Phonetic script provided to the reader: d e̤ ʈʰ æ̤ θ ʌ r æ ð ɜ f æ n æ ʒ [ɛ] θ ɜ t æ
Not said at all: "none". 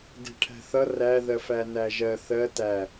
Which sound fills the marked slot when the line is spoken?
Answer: ɜ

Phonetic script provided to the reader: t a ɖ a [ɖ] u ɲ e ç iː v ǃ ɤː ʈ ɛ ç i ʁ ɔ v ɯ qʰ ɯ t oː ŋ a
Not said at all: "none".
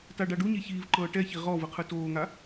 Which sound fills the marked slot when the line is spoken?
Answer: ɖ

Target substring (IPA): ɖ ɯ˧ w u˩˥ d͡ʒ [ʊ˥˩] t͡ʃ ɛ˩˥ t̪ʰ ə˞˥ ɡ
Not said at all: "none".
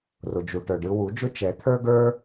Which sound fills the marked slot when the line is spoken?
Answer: ʊ˥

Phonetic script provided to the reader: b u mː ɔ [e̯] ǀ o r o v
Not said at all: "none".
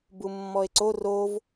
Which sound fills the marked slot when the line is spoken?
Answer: e̯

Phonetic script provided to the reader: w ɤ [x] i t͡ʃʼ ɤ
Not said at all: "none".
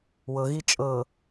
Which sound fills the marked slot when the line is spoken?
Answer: ɣ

